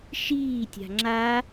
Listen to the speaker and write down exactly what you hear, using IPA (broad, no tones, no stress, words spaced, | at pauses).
ʃiː tʲa̤ŋ͡ǁa